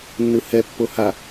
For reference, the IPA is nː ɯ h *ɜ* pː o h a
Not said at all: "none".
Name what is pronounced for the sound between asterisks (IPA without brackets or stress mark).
ɛ